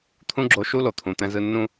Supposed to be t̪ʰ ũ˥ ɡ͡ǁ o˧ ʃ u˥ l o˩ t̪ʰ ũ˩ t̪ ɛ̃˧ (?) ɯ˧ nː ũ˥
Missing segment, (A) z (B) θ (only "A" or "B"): A